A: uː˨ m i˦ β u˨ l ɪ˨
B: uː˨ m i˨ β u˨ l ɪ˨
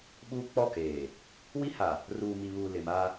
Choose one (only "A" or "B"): B